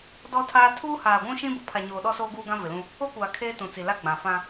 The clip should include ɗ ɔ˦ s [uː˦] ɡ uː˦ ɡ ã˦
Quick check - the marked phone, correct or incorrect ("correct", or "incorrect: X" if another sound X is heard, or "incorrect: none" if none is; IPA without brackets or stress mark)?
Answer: incorrect: oː˦